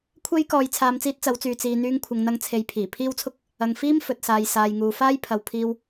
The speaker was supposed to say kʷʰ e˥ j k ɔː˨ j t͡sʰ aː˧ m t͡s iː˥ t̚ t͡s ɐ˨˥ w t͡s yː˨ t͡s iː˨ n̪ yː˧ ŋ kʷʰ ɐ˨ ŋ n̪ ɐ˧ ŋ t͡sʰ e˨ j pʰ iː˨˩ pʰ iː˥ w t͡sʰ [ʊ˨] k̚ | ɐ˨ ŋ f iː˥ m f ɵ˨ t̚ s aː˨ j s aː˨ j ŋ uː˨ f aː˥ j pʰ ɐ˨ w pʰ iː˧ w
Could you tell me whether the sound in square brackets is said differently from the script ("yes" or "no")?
yes